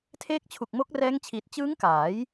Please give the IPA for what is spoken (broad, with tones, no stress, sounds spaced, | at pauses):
tʰ eː˦˥ k̚ t͡ɕʰ u˨˩ k̚ m o˦˥ k̚ r ɛː˦˥ ŋ t͡ɕʰ iː˨˩ t̚ t͡ɕ ɯː˦˥ ŋ k aː˩˦ j